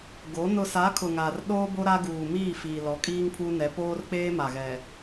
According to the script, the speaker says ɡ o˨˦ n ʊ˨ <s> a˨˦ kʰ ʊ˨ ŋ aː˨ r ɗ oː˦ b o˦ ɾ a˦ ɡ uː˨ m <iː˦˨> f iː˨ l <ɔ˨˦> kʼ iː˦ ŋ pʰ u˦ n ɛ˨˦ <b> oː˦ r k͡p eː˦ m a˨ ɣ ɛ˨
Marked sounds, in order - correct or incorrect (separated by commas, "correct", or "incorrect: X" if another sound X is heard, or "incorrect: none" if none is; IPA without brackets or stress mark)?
correct, correct, correct, incorrect: p